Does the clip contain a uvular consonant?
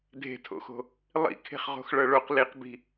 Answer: yes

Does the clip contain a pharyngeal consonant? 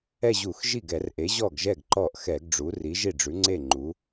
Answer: no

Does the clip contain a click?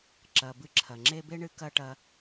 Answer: yes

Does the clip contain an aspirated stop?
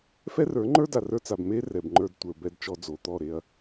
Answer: no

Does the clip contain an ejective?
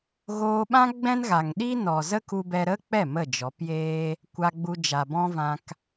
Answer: no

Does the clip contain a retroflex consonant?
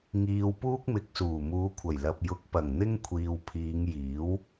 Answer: no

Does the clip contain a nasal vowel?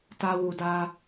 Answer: no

